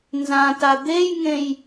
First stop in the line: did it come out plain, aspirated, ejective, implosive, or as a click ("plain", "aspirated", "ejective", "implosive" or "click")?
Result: plain